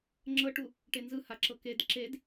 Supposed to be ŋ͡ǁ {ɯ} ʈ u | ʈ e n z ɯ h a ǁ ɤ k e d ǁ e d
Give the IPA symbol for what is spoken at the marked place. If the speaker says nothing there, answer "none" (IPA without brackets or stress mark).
ɤ